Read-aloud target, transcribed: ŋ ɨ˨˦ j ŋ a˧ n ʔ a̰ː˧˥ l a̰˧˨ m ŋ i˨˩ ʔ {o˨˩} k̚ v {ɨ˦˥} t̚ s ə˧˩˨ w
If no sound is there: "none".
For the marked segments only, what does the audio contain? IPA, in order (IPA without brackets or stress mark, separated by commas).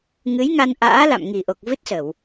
o˨˩, ɨ˦˥